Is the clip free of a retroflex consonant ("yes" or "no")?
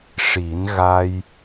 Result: no